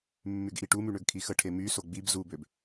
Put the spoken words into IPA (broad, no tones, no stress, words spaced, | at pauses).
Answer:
mːyɡʔiʈumy ɳøɡkʰixəʈʰe myso ɡ͡bib zubøb